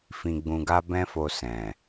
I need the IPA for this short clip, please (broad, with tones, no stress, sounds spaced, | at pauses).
f ĩ˧ ɡ͡b ũ˧ ɡ a˦ b ɛ̃˦ f o˧ s ɛ̃˨